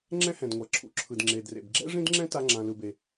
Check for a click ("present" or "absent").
present